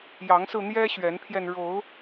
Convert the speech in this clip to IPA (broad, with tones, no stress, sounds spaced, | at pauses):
j ɑ˨˦ ŋ s ɹ̩˧ n̪ j ɛ˦ ɕ ɥ ɛ˨˦ n pʰ j ɛ˧ n ɻ o˨˦ ʊ̯